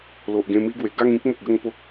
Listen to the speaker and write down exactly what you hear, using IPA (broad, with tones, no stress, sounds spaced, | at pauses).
l o˨ ʔ ɡ ẽ˧ m i˦ ɡ w e˨˩ ɡ a˥˧ ŋ ĩ˦ k̚ m ə˨ k̚ ɡ ə˥˧ ŋ p o˦ k̚